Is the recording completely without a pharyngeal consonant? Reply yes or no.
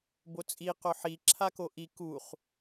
no